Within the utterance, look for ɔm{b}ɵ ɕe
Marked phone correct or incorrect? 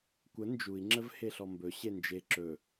correct